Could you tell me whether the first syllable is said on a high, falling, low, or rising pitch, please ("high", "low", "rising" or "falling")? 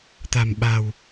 low